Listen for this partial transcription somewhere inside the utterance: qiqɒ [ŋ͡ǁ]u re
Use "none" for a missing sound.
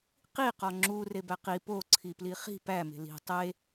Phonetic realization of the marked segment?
ŋ͡ǁ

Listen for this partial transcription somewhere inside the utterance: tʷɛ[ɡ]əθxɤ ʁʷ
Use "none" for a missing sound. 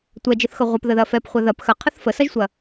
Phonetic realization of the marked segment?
d͡ʒ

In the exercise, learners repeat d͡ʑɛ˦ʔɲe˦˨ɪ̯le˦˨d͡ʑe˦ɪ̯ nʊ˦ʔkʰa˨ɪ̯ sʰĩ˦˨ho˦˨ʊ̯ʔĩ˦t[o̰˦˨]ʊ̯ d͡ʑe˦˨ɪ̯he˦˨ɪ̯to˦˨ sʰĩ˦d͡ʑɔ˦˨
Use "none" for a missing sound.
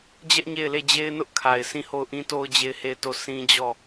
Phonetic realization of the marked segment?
o˦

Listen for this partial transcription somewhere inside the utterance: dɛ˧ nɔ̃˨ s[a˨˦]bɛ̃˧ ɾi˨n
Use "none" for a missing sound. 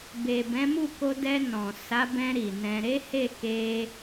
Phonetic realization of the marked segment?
a˨˦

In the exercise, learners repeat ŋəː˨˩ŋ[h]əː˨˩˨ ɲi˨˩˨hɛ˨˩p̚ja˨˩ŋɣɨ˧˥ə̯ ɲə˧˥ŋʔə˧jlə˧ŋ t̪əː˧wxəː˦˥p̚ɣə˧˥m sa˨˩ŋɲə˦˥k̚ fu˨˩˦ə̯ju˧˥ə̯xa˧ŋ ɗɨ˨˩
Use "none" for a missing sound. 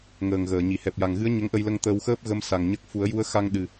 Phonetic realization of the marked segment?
ɣ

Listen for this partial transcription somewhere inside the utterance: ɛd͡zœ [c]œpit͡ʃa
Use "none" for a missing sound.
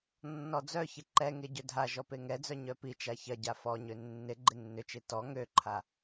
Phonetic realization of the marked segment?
ɲ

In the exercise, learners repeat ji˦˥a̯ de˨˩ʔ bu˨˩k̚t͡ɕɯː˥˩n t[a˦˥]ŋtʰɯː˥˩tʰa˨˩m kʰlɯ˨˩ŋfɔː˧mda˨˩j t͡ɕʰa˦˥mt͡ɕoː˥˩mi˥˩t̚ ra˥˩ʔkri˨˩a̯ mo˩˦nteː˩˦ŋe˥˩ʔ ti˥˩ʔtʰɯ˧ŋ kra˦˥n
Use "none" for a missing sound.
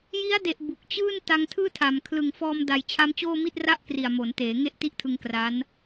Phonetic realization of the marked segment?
a˧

